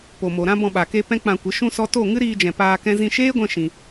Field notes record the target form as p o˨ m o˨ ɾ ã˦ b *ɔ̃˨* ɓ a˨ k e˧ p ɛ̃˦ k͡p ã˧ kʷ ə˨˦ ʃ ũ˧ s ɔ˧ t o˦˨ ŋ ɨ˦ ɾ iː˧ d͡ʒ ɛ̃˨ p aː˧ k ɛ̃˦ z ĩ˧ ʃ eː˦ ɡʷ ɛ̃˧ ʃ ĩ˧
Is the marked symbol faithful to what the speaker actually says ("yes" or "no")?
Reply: no